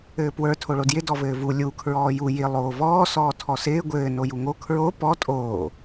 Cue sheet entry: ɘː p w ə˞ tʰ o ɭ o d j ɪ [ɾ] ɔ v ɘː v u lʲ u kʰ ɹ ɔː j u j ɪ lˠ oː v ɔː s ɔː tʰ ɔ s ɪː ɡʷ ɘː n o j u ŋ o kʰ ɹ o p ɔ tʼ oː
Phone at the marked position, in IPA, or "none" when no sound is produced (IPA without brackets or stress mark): d